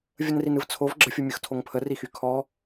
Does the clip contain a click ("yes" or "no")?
yes